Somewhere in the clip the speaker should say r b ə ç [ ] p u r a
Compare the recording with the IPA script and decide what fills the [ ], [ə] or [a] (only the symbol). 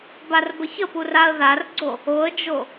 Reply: ə